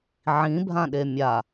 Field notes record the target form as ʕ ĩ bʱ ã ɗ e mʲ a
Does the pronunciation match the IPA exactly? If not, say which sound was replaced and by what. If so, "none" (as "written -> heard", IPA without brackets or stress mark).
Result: none